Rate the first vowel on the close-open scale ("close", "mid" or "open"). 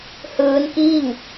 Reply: close